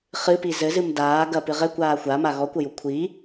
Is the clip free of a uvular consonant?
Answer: no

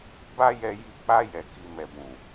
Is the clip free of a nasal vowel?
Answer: no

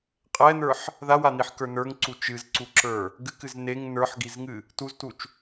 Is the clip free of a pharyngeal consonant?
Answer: no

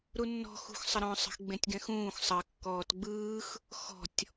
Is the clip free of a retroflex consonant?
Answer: yes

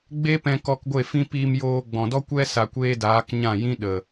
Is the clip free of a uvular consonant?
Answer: yes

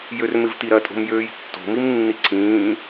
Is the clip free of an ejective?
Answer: no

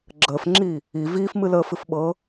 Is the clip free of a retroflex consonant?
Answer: yes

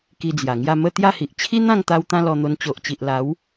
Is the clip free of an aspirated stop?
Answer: no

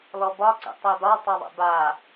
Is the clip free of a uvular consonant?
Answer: yes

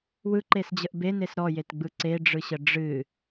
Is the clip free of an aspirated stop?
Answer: yes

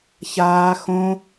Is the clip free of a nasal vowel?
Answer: no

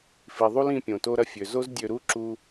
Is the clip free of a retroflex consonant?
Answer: yes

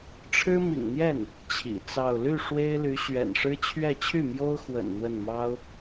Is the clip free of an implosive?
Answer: yes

